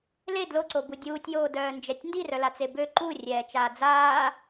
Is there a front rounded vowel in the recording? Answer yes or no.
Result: yes